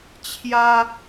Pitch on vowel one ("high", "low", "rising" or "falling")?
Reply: high